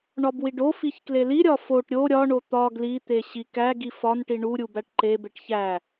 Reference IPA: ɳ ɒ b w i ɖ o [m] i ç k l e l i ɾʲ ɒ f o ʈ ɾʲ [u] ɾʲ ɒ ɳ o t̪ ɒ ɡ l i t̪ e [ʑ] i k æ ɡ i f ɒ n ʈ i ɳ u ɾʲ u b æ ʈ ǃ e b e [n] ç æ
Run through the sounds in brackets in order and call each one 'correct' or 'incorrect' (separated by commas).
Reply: incorrect, incorrect, incorrect, incorrect